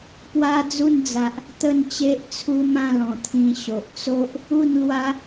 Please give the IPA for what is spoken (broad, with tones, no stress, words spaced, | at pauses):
pwa˦d͡zu˥˧nd͡za˨ʔ | t̪ə˥˧nt͡ɕe˦ʔt͡sʰu˦ mã˥˧lɔ̃˨˩t̪ʰĩ˧ ɕo˨ʔt͡so˦ʔ | u˥˧nlwa˦